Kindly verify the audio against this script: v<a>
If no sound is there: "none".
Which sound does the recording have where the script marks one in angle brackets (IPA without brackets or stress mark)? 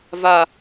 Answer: a